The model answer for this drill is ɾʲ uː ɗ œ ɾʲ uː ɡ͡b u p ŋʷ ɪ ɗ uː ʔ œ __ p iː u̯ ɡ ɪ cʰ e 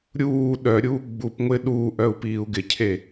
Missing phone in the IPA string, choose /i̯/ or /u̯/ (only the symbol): u̯